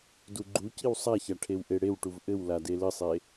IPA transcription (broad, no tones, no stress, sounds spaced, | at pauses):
d u ɡ͡ǃ u c i w sˤ a ç a ʈʰ e w ʔ e ɽ e w ʈ u v ʔ ɘ w l a d e l ɘ sˤ e